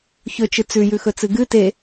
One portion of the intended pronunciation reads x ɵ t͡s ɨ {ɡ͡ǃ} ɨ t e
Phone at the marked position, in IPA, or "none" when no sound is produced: ɡ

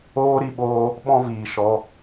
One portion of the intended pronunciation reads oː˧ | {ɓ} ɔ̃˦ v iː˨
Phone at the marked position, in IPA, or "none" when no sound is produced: ɓ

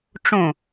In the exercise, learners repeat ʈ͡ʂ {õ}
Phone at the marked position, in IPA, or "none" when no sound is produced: õ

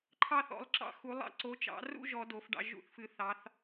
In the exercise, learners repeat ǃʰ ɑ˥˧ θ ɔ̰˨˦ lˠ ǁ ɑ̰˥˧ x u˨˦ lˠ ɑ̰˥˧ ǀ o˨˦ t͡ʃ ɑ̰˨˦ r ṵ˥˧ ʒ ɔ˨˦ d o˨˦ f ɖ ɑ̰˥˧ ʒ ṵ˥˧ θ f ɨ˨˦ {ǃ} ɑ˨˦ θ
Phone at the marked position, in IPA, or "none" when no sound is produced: θ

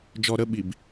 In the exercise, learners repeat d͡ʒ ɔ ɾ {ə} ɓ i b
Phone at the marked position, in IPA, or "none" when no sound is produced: ə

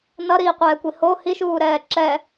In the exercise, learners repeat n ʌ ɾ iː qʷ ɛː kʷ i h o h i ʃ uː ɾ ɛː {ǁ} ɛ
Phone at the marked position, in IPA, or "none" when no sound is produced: ǁ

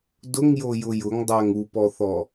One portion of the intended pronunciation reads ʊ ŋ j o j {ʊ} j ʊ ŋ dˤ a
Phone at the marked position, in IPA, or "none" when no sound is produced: ʊ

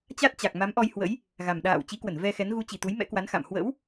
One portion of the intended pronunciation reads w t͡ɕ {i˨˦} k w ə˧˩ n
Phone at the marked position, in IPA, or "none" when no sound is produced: i˨˦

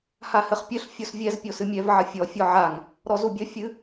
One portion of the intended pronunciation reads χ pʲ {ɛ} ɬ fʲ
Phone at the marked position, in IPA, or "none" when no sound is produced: ɘ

